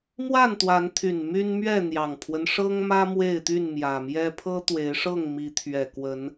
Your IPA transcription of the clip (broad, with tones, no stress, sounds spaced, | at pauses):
m w a˥˨ n t̪ w a˨˦ n t̪ʰ y˨˩ n m y˦ n m ɥ ɛ˥˨ n̪ j ɑ˨˩ ŋ pʰ w ə˦ n ʂ ɤ˦ ŋ m ä˦ m w e˥˨ ɪ̯ t̪ y˥˨ n m j ä˨˩ m j ɛ˦ pʰ ɤ˦ t̪ w e˨˦ ɪ̯ ʂ ɤ˥˨ ŋ m i˨˦ t̪ʰ ɥ ɛ˨˩ k w ə˨˦ n